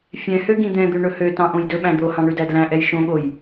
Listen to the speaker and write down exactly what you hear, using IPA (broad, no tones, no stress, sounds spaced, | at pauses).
fʲ ɛ̃ h ø ɡ ĩ d̪ ɛ̃ d̪ ø ɳ ɵ h ø t ɑ̃ ʔ õ j d ɵ ɓ æ̃ d̪ o h ɑ̃ ɳ ʉ d æ d l æ̃ ʔ ɛ j ʃ õ ɠ o j